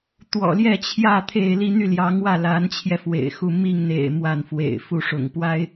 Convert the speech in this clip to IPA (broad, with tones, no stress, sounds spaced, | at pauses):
t̪ w ɔ̰˨˩ l j ɛ˥˧ t͡ɕʰ j ä˥˧ t̪ʰ e˥˧ ɪ̯ l i˥˧ n̪ y˥˩ l j ɑ˧˥ ŋ w ä˥˩ l a˧˥ n t͡ɕʰ j ɛ˧ f w ḛ˨˩ ɪ̯ x u˥˧ m i˥˩ ŋ n̪ ḛ˨˩ ɪ̯ m w a˥˩ n f w ḛ˨˩ ɪ̯ f u˥˩ ʂ ʊ̰˨˩ ŋ p w a˥ ɪ̯